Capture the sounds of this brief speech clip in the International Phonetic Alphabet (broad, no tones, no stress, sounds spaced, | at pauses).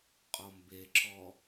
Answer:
qʼ ɔ m b e ǁ ɔ